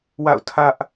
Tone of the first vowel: falling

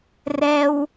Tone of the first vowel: high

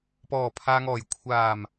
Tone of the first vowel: low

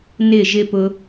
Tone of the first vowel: falling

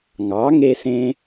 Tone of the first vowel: rising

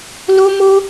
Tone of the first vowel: high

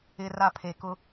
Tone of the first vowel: low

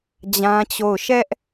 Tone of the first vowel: high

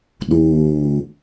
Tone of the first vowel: low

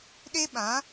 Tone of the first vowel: high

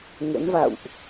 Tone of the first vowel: rising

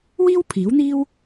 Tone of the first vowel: high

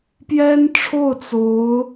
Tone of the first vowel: high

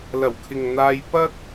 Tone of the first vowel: low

